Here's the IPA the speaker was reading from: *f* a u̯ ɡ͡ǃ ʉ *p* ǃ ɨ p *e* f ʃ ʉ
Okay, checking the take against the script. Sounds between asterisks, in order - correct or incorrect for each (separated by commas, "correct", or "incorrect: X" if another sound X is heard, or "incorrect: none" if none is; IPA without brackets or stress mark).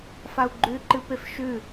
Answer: correct, incorrect: none, correct